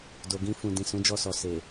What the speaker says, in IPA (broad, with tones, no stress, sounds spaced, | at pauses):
d o˨ ɡ ĩ˧ f ũ˨ d ĩ˨ s ũ˨˦ d͡ʒ ɔ˧ s ɔ˨ s e˨